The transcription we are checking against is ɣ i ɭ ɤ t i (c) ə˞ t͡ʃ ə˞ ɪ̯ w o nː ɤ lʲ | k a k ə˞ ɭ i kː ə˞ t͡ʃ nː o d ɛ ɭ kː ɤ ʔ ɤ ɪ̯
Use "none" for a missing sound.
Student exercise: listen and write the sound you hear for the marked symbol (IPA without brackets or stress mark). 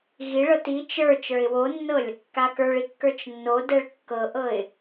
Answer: t͡ʃ